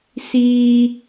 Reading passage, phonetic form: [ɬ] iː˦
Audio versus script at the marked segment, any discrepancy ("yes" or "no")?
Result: yes